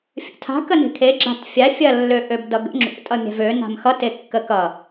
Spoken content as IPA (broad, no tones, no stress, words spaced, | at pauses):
fʲə̰tʰa̤ kəne̤kʰe ɡ͡ǁa̤tfʲa fʲɐ lːøʔøbdʌɡə̰ ŋ͡ǁṵ tʼʌmʲa̤vø na̤mxʌt ekːəkʌ